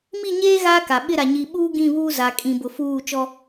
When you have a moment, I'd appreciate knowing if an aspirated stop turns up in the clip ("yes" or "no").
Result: no